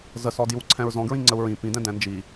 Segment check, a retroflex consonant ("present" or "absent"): absent